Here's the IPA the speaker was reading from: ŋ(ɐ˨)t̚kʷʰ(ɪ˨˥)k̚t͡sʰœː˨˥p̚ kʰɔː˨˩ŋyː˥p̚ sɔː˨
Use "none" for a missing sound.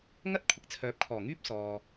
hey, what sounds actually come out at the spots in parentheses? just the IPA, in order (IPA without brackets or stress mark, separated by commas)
ɐ˥, ɪ˨˥